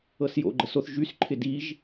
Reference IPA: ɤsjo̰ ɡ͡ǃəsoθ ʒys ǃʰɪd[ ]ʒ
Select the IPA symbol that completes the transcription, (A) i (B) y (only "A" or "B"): A